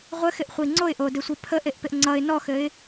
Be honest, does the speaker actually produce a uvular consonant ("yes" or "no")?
yes